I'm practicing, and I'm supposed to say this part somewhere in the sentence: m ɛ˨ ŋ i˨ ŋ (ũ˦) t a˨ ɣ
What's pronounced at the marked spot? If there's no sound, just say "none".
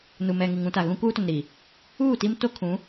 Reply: ũ˦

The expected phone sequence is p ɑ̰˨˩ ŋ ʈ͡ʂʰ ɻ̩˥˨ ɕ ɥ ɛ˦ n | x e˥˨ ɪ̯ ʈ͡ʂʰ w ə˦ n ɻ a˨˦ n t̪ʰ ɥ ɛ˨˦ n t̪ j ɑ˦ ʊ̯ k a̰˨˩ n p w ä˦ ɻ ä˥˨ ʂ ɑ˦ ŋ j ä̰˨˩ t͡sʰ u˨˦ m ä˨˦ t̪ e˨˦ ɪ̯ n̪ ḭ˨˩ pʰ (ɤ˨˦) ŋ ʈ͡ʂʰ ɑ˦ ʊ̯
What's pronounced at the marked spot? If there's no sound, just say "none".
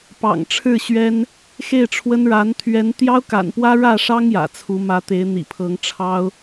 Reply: ɤ˨˦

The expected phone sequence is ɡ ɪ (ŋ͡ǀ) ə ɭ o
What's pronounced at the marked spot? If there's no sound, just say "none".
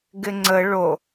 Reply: ŋ͡ǀ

